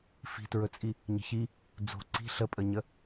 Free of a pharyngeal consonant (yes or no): yes